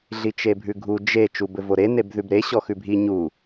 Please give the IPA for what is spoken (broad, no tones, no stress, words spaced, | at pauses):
ɮit͡ʃebʱʉɡʱu d͡ʒe t͡ʃubɘvoɾe nebðʉbɾe ɕɔxʉbʱi ɲu